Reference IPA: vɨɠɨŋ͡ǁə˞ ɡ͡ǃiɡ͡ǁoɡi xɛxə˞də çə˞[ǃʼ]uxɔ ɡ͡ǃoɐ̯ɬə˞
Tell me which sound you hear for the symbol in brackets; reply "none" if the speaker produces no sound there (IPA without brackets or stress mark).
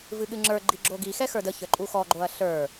ǃʼ